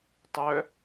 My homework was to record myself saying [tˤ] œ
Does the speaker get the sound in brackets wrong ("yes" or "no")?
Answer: no